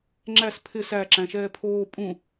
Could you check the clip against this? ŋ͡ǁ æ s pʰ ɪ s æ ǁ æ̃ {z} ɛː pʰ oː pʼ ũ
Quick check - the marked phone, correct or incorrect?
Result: incorrect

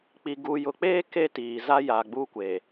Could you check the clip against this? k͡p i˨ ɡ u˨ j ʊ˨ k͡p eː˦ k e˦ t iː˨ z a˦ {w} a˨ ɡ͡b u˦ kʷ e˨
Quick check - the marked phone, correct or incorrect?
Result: incorrect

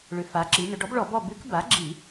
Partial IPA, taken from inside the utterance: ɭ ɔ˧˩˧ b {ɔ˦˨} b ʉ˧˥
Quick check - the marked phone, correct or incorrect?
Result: correct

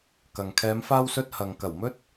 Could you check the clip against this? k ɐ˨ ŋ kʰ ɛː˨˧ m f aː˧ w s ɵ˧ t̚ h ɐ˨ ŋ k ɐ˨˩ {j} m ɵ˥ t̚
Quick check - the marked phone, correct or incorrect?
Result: incorrect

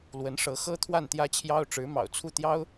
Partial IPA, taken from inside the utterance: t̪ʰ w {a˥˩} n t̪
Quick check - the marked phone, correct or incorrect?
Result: correct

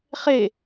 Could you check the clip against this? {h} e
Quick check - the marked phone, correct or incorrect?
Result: incorrect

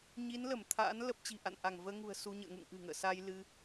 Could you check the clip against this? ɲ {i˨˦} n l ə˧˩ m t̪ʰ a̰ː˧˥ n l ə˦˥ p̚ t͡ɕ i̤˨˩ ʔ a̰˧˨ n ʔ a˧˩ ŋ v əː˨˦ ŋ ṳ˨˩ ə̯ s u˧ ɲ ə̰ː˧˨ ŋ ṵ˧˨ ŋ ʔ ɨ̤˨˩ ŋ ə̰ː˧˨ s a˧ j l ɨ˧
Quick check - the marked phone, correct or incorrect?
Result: correct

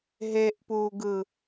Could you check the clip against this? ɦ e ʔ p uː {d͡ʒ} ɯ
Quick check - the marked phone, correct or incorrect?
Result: incorrect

